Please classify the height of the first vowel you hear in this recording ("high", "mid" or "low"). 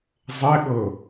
mid